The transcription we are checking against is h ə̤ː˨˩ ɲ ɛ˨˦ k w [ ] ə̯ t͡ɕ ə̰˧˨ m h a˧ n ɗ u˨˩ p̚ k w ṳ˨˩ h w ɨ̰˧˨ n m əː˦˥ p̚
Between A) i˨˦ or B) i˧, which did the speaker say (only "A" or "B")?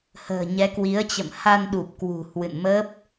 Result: A